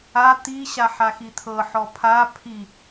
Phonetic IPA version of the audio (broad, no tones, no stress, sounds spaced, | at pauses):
a t̪ i ɕ a ħ a x i t̪ʰ ɤ ħ ɔ pʰ a pʰ i